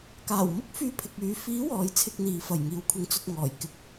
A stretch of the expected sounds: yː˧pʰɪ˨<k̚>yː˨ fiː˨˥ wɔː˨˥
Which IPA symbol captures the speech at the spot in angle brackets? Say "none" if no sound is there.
k̚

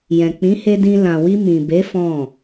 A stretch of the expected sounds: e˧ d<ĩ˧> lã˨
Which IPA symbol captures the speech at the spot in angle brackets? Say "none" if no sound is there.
ĩ˧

